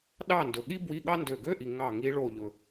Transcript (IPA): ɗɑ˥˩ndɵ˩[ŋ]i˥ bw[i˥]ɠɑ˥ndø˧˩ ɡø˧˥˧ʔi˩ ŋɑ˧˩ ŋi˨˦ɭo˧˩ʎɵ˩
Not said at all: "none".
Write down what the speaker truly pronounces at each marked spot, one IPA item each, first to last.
ɠ, i˧˥˧

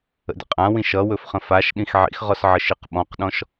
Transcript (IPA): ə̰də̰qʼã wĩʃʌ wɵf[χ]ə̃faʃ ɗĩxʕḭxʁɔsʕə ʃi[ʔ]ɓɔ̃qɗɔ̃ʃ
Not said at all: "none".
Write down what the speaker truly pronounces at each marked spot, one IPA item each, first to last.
χ, q

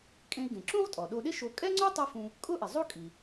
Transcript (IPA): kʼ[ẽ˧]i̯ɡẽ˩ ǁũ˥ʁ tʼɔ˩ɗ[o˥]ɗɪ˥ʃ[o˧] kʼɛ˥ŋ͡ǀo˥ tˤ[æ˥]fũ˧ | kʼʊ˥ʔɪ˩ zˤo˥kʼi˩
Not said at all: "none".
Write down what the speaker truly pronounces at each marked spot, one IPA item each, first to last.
ẽ˧, o˧, o˧, ɛ˥

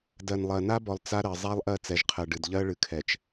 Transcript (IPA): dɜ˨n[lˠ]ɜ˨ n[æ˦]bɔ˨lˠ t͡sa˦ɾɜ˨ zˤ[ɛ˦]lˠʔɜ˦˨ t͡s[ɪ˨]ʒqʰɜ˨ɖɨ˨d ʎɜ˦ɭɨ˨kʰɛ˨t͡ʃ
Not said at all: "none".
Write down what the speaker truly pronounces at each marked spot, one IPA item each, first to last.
lˠ, a˦, æ˦, ɛ˨

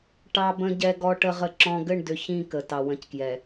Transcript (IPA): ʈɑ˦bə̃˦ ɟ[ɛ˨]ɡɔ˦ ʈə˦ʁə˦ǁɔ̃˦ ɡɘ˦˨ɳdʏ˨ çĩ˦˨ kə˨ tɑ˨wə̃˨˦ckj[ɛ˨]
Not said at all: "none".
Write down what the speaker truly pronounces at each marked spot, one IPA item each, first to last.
ɛ˦, ɛ˨

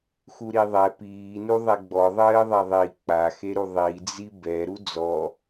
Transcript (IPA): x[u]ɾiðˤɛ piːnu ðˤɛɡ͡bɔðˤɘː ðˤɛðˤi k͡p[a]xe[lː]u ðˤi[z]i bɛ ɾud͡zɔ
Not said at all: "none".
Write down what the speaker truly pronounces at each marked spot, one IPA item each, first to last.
u, a, ɾ, d͡z

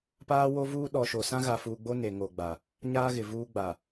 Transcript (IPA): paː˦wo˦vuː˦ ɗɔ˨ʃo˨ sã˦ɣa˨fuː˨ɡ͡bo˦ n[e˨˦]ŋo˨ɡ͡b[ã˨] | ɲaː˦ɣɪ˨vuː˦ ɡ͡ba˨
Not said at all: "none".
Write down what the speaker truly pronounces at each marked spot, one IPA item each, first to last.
e˨, a˨

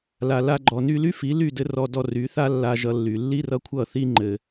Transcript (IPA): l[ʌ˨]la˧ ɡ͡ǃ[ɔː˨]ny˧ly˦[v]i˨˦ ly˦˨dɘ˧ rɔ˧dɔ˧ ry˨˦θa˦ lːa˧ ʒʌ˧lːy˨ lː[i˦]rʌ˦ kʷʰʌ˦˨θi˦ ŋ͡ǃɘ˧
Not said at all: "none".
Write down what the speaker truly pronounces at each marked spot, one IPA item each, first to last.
a˨, ɔ˨, f, i˦

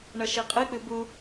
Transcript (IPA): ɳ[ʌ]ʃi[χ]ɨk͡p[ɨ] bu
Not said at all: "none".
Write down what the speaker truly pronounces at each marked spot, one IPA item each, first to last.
ʌ, qʼ, ɨ

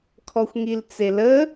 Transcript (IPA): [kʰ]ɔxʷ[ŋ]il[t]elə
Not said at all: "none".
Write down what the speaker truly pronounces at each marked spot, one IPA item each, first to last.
kʰ, ŋ, t͡s

